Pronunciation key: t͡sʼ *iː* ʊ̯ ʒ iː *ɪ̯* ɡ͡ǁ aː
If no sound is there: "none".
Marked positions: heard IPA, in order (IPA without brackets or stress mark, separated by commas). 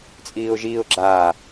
iː, ʊ̯